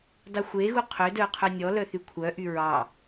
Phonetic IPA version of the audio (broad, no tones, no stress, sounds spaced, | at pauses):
d ɑ xʷ e ɣ u qʰ ø d œ qʰ œ nʲ ɔ l œ θ y kʷʰ œ ʔ y ɹ ɑ